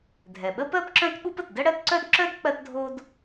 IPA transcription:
dʱ ɛ˩ ɓ ə˥ p ɜ˥ p ǁ œ̃˥ t ɓ u˥ p ə˩ t d ə˥ ɽ ɜ˥ t ǀ œ˥ d ǁ œ˥ d k͡p ɜ˥ t dʱ o˥ d

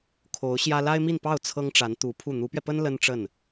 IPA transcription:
kʰ o˧˥ ʊ̯ ɕ j ä˥ l a˥ ɪ̯ m i˥˧ n p ɑ˥˩ ʊ̯ t͡sʰ ɤ˥ ŋ ʈ͡ʂ a˧˥ n t̪ u˧˥ pʰ u˥˩ n̪ u˧˥ p ɥ ɛ˧ p ə˥ n l ə˥ n ʈ͡ʂ ə˥˩ n

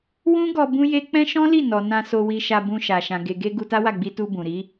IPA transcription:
w ũ˦ ɡ ɔ˧ b ũ˦ j e˦ k͡p ɛ̃˦ ʃ ɔ̃˦ l i˦˨ n ɔ˨ n ã˧ s o˧ w i˧ ʃ a˧ b ũ˧ ʃ a˨ ʃ ã˨ ɡ e˨ ɡ e˧ ɡ u˧ t a˦ w a˦˨ ɡ͡b i˧ t u˧ b ũ˨ ɾ i˨˦

